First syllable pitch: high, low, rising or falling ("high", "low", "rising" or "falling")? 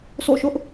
falling